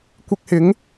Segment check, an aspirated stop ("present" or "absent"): absent